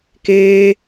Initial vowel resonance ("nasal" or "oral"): oral